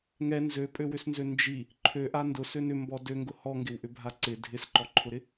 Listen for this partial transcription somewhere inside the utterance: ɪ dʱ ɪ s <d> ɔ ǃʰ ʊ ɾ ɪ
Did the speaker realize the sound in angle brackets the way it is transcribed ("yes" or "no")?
no